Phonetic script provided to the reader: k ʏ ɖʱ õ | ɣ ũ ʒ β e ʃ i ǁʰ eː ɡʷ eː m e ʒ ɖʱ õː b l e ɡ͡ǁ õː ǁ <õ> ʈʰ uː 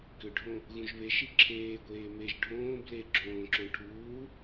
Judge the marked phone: correct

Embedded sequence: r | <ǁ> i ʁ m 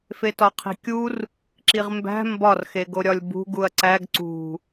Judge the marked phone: correct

